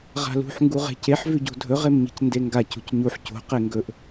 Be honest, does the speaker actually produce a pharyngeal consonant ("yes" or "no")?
yes